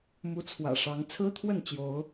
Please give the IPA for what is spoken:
m u˨˦ t͡sʰ w ä̰˨˩ ʂ ɑ˨˦ ŋ t͡sʰ ɹ̩˦ t̪ʰ w ə˥˨ n t͡ɕ j o˨˦ ʊ̯

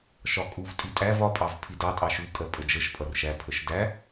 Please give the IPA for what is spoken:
ʃ ɒ kʼ u v tʼ i tʼ æ v ɒ pʼ ɑ v pʰ i d ɑ tʼ ɑ ʃ u kʼ ɜ pʼ ə d͡ʒ ə ʃ pʼ ʌ r ʃ æ pʰ ə ʃ d æ

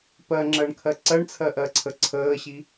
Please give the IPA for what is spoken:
p ɜ ŋ͡ǁ ɜ ɳ kʰ ɜ ǀ ɜ ɳ t͡sʰ ɜ ʔ ɜ ǀʰ ə ǀʰ əː ɕ i

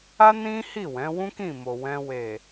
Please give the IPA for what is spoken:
a˦ n ĩ˦ h i˦˨ w ɛ̃˨˦ w ũ˦ k ĩ˦˨ m o˨ w ɛ̃˧ w e˨

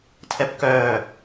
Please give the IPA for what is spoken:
tʰ ɛ p k œː

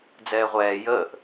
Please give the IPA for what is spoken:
d͡z ɛː ʁʷ ɛː j əː ʔ

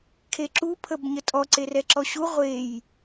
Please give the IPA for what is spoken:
kʰ e ǁ u pʰ ə b ɲ ə tʼ ɔ ǀ e r ɛ ǁ ɔ ɕ u ʁʷ e j

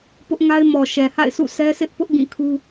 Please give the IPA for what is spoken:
p ʊ˦ ʔ ŋ a˦ ɪ̯ m ɔ˨ ʃ ɛ˨ h a̰˦˨ ɪ̯ sʰ ṵ˦˨ sʰ ɛ˦ sʰ ɪ˦ ʔ p ʊ˦ ʔ ɡ ĩ˦˨ kʰ u˦

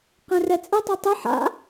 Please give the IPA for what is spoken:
q ẽ r ɛ t͡sʼ ɨ tˤ o tˤ ɨ ħ a̰

